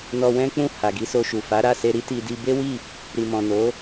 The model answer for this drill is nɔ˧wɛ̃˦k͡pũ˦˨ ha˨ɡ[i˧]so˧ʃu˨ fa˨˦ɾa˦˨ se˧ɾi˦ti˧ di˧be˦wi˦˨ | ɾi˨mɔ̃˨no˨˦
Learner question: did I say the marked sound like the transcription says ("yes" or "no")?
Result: no